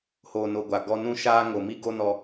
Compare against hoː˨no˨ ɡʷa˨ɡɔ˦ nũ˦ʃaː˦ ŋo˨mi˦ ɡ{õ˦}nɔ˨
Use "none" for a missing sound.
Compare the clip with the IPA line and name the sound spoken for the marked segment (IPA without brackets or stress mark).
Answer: o˦